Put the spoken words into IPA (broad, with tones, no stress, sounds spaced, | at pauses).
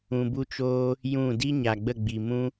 ũ˧ b u˦ t͡ʃ oː˦ | j ũ˦˨ d i˦ ɲ a˨ ɡ͡b ə˦˨ ɡ͡b i˨ m ũ˦